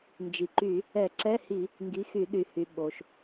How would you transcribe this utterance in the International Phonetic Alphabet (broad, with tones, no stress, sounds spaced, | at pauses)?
n d͡ʒ i˩ ǃ y˧˩˧ | ɛ˧˩˧ ǁ ɛ˧˥˧ h i˧˩˧ | ŋ ɡ i˩˧˩ x y˧˩˧ ɗ y˩ h y˩ ɓ o˩ ʃ